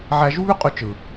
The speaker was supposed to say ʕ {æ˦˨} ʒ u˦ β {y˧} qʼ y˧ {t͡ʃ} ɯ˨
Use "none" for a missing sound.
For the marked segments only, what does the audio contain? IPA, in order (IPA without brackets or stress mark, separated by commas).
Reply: æ˧, y˦, t͡ʃ